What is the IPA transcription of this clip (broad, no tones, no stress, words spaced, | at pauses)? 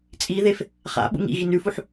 t͡sʼiðef | χa̰ ɓṵŋḭɣin ʉfuħ